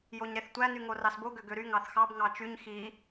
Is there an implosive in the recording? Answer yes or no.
no